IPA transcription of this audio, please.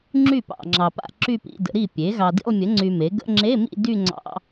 ŋ͡ǁ y˥˩ p ɑ̰˨ ŋ͡ǁ ɑ˨ p a̰˥˧ ǁ y˥˧ p ḭ˧˥˧ d ə̰˩˥ ɾ i˥˩ pʲ e˩˥ ɣ ɑ˨ d ḭ˥˧ lˠ mʲ ə˩˥ ŋ͡ǀ y˨ m e˩˥ ɡ ə̰˧˥˧ ŋ͡ǁ e˧˥˧ m ḭ˥˧ d y˥˧ ŋ͡ǀ ɑ̰˧˥˧

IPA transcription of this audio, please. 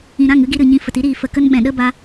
ĩ˨ ɾ ã˦˨ ŋ ɨ˦ ɡ i˧ ɾ ɨ˨ ɲ ĩ˧ f ə˨ t i˦ ɾ iː˨ f ə˨ k ə˦ n ɓ ɛ̃˨ ɗ ə˦ b a˧

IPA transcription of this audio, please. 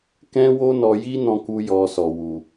k ɛ̃˦ w o˦ n ɔ˧ j i˦ n ɔ̃˦ k u˦ j ɔ˧ s ɔ˨ w u˨

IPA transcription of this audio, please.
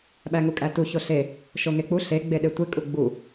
ɓ æ ŋ u kʼ æ t u ç o ɬ e | ʃ o ŋ e k͡p u ɬ e ɡ͡b e ɗ e tʷ e kʼ u ɡ͡b u

